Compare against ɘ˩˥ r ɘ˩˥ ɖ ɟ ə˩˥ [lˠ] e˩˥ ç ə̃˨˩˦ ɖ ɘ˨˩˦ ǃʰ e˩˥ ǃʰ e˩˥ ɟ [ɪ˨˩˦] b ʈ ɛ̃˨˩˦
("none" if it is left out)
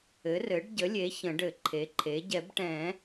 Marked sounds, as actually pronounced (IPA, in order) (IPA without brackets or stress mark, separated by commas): lʲ, ɛ˨˩˦